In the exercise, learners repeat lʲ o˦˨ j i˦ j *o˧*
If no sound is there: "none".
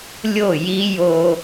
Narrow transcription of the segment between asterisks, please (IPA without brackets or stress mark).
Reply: o˧